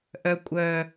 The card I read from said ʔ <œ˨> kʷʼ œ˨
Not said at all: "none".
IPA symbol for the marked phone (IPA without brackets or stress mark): œ˨